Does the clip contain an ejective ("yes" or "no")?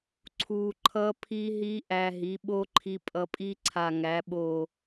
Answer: yes